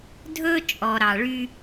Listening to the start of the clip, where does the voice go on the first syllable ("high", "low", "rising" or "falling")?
high